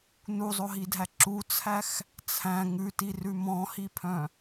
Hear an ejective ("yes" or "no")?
no